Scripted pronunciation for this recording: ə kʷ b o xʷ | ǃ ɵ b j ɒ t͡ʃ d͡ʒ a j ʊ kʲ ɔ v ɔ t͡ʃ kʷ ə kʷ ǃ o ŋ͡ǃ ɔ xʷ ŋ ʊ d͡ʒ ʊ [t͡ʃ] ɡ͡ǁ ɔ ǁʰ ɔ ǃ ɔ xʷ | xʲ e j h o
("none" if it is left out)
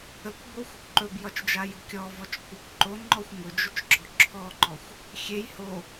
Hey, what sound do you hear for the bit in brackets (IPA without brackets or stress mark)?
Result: t͡ʃ